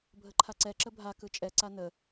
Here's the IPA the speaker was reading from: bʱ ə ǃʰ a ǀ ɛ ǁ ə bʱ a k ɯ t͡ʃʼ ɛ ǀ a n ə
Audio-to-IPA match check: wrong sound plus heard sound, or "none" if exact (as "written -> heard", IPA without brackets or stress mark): none